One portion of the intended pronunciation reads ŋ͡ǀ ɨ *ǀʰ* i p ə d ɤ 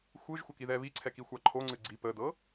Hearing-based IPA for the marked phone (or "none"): ɡ͡ǀ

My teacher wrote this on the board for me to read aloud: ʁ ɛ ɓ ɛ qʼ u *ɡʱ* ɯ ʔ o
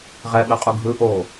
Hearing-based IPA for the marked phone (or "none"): ɡʱ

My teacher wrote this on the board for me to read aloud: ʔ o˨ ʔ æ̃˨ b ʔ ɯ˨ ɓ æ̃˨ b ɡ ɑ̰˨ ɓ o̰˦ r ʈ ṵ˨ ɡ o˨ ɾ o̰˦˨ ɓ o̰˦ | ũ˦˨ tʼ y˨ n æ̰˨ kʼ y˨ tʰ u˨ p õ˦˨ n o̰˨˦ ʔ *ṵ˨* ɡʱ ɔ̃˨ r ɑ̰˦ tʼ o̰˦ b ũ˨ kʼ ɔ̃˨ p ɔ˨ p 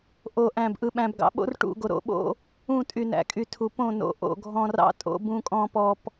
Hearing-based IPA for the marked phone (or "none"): o̰˨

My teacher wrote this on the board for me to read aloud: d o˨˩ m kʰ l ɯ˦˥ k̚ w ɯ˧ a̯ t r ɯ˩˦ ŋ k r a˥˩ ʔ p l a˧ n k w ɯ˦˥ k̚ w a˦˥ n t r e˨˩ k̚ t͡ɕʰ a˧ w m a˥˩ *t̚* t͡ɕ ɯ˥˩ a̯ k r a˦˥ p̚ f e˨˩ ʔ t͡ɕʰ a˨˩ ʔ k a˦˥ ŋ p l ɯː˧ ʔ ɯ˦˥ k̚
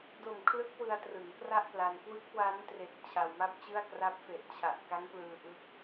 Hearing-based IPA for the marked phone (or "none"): p̚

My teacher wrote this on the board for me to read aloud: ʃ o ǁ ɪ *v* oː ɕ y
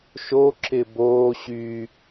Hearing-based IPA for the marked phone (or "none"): b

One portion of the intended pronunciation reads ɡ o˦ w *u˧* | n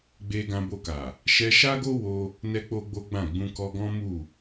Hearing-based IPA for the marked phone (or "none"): o˧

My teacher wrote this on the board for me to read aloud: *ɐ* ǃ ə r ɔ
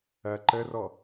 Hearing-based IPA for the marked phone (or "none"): ɐ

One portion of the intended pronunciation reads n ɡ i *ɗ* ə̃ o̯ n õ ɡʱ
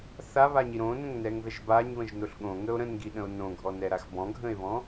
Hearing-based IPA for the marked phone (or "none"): ɗ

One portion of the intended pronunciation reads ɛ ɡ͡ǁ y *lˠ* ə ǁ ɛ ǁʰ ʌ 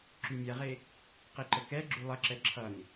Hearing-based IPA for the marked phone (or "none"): lˠ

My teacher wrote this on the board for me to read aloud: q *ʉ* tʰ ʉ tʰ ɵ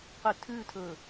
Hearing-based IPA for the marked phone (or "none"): ʉ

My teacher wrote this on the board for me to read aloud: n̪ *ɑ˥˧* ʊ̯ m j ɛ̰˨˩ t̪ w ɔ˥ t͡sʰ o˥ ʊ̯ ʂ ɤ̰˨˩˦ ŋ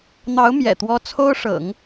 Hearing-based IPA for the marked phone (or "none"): ɑ˧˥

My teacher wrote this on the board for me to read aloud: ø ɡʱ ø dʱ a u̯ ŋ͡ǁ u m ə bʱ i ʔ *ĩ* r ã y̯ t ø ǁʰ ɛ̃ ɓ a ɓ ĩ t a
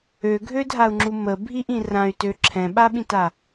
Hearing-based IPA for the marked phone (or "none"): ĩ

